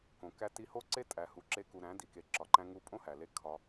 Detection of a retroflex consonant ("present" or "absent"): absent